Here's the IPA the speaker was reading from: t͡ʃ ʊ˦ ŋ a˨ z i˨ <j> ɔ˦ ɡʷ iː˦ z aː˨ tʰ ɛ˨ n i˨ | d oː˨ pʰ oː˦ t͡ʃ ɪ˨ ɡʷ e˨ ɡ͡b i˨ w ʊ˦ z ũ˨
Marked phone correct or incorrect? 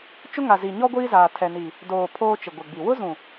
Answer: incorrect